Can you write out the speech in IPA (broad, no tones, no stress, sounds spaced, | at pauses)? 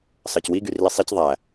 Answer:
s ɑ c w i ɡ y r l i sˤ e c ðˤ æ